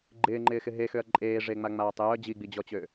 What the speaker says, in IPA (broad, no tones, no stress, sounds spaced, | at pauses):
ɡ͡ǃ ɪː ŋ͡ǃ ɪː x ɪ ɦ e x ø ɐ̯ ǃʼ eː ʐ e ŋ͡m a ŋ͡m aː tˤ j œ d͡ʑ i ɡ͡b i d͡ʑ ɔ t͡ɕ ø